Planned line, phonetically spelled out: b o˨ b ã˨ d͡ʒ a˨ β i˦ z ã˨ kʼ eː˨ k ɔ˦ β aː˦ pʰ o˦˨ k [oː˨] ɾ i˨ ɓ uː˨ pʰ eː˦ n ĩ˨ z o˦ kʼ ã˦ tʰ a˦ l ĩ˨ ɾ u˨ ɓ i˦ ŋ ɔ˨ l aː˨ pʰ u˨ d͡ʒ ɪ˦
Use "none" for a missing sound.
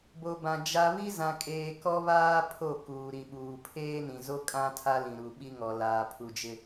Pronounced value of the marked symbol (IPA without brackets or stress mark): uː˨